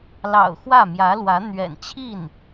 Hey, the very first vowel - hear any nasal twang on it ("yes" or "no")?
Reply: no